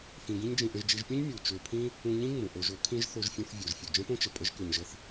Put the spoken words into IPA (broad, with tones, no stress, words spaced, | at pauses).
fĩ˧ɡĩ˦ɲd͡ʒĩ˧ ʔə̃˧ʒd͡ʒi˧ʒpʲũ˦ɲ mʲu˨t͡ʃø˧pʰĩ˦ | ũ˧ɲĩ˦ ŋ͡mũ˨ʔo˧ʒo˨˦ kʰĩ˦ʒ θo˧ʒfʲũ˧θ vʲo˨ʒfʲu˨ d͡ʒə̃˦põ˦t͡ʃə˨ pʼə˦ʒkø˧ɲʒə˦θ